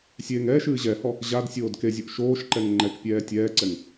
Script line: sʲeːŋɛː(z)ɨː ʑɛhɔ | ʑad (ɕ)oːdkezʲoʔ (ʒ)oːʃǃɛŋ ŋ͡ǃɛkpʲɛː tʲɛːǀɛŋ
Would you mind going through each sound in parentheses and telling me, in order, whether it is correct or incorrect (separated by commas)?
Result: incorrect, incorrect, incorrect